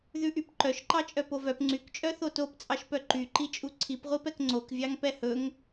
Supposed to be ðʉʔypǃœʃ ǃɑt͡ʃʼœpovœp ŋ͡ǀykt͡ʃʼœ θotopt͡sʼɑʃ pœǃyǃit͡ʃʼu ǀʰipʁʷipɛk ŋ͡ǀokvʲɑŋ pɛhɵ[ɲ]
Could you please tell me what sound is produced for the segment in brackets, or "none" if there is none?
ŋ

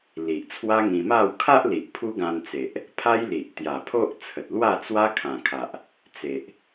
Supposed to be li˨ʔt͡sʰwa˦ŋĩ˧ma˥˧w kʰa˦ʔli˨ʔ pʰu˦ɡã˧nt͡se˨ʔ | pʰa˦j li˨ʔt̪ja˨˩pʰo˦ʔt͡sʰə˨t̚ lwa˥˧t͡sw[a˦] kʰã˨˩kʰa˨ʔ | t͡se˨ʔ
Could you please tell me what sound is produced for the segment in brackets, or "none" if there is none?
a˦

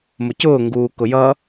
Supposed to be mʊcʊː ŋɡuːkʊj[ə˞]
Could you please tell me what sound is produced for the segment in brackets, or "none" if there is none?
ʌ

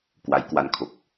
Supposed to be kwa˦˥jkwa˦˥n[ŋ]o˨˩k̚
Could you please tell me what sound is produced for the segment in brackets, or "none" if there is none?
kʰ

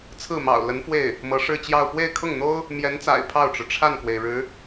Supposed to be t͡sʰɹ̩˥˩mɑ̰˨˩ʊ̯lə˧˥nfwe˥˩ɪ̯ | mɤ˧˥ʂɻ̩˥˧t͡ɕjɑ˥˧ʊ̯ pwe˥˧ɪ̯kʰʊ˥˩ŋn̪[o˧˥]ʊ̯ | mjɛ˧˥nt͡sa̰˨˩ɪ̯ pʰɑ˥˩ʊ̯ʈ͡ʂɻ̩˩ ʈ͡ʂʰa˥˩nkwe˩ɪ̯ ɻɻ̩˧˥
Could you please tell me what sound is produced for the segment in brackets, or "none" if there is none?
o˥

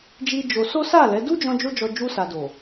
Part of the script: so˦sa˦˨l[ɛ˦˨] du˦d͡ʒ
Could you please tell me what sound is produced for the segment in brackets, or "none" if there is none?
ɛ˨˦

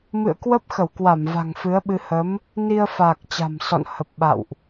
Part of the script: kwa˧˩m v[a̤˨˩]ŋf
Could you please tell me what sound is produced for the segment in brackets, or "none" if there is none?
a̤˨˩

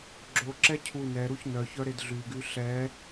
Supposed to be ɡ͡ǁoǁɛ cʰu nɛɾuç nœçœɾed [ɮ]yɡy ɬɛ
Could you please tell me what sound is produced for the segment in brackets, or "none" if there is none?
ɮ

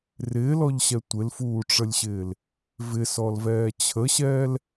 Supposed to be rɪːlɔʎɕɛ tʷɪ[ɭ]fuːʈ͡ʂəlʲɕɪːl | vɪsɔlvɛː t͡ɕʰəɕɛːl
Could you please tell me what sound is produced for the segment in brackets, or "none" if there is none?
l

